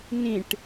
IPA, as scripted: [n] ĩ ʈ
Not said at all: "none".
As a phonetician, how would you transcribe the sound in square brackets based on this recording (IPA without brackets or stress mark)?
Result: n